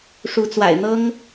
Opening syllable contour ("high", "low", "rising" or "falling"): rising